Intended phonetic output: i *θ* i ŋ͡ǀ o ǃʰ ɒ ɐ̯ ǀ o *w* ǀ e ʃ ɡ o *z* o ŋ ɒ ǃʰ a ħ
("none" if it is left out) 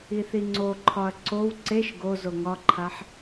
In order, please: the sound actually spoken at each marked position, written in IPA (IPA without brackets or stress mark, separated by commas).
θ, w, z